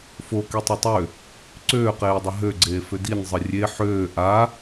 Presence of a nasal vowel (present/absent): absent